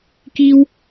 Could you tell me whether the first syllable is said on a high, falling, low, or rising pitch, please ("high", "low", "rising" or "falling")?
high